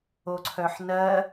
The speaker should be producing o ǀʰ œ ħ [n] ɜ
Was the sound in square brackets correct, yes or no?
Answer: yes